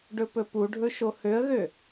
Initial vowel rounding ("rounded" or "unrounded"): rounded